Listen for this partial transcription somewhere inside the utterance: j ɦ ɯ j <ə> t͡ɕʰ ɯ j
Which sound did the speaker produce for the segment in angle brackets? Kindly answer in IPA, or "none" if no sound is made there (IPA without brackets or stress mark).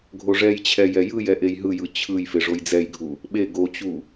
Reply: ɯ